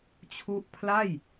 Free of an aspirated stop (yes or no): no